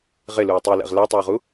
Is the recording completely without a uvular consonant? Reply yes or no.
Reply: no